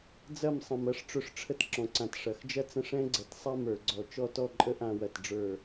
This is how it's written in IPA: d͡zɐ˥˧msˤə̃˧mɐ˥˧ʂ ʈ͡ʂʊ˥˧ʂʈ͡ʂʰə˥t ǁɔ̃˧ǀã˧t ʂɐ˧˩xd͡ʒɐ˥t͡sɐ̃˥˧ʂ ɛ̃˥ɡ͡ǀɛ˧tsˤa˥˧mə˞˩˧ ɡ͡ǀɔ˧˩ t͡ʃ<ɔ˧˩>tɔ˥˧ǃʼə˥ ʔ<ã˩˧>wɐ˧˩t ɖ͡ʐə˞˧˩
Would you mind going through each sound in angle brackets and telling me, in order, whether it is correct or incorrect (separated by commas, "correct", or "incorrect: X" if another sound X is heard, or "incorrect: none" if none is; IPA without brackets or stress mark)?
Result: incorrect: ɔ˥˧, incorrect: ã˧